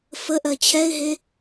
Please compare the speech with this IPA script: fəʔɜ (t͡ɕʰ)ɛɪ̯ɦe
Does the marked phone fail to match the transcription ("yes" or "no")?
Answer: no